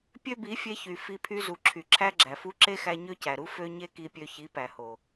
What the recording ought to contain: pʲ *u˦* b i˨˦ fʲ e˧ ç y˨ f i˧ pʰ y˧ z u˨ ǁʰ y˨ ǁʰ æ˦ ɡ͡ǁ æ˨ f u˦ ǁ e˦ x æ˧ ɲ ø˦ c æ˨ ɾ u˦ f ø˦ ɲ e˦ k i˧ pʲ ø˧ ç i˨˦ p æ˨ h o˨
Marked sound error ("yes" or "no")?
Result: yes